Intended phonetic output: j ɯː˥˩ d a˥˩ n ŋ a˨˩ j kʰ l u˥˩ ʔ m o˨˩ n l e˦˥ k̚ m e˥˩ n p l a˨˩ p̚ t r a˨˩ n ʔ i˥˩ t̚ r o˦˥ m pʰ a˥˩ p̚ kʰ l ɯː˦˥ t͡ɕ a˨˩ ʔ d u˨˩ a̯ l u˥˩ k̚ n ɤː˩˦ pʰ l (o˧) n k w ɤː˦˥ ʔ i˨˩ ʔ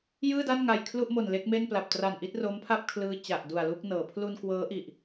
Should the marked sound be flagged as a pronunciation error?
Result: yes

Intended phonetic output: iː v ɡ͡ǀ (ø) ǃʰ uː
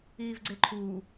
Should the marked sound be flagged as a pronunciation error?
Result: yes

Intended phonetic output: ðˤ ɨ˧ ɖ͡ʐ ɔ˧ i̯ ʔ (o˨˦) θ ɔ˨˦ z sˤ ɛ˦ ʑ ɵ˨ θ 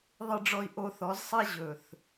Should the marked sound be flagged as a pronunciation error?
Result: yes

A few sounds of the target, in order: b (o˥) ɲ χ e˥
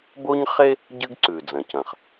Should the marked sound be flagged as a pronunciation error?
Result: no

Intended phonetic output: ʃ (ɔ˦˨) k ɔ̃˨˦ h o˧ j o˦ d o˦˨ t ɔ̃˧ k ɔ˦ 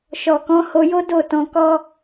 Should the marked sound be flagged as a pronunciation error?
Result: yes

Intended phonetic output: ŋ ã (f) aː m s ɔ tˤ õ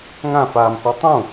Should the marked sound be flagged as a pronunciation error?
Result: no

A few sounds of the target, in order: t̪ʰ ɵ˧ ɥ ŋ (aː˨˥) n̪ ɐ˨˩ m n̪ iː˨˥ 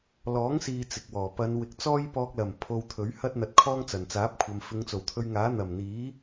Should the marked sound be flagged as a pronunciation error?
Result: no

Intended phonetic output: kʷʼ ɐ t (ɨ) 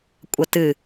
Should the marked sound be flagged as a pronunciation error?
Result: no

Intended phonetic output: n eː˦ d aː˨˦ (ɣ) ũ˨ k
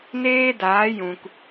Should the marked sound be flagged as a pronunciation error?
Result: yes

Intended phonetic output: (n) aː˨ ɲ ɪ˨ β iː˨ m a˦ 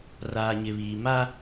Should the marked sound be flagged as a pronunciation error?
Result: yes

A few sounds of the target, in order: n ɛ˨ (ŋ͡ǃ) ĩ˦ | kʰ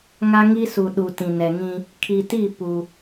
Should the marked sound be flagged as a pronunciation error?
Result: yes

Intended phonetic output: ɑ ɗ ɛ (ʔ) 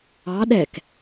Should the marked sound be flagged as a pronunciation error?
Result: yes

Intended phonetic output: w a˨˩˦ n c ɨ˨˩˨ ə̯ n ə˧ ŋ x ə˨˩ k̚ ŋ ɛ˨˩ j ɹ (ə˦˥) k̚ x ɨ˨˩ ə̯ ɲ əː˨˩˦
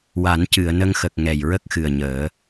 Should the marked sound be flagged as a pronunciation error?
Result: no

